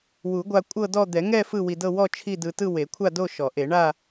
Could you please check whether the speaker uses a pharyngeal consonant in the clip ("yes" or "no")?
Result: no